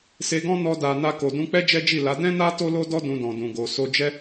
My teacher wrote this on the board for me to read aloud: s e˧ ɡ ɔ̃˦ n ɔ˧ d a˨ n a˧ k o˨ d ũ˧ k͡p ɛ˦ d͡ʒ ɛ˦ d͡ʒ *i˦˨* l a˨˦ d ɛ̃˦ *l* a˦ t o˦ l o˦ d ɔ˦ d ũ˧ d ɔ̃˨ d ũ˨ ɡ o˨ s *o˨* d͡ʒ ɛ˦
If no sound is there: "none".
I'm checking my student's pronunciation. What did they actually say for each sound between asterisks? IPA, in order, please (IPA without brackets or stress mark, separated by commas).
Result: i˦˨, n, o˧